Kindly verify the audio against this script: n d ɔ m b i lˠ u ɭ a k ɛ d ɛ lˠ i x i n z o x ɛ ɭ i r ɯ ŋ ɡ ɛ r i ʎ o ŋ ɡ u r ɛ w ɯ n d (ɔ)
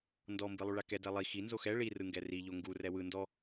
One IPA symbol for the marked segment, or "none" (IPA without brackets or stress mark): ɔ